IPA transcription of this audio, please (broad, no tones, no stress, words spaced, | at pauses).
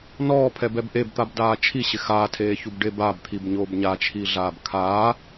nɔːpʰɛbɛb ʔebt̪abdaː t͡ʃʰiɕɪ xaːtʰeːçubɖeːb abt̪ʰibɲoːb ɲat͡ʃʰiɮaːb kʰaː